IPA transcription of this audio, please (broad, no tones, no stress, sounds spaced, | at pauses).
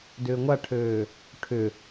d ʏː ŋʷ a ʈʰ øː | ʈʰ ʏ